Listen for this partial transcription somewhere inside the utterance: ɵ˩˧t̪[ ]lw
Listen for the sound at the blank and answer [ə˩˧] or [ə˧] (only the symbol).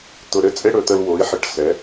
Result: ə˧